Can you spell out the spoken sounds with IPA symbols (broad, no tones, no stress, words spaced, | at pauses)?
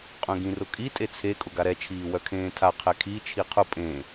qʼœ̃ɡĩrʊkʼi tʼet͡sʰe kʼʊɡaɾɛ t͡ʃʰiːwœkʰẽːtʰa qʰɛkʰi t͡ʃʰiqʰʊ pʼẽ